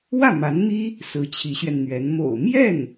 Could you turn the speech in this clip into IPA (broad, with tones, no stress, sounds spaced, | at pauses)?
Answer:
w ä˥˩ m a˧˥ n m i˥ | s ɹ̩˧˥ t͡ɕʰ i˧˥ ɕ ɥ ɛ˧ n n̪ ɥ ɛ˧˥ n m o̰˨˩ ʊ̯ m j ɛ˥˩ n